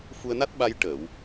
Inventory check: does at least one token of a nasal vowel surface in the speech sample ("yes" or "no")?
no